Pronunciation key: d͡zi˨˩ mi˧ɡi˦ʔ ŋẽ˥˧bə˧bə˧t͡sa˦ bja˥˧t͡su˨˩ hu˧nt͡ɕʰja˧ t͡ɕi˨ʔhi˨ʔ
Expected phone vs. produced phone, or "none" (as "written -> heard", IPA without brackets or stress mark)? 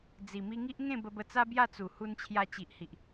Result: ɡ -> ŋ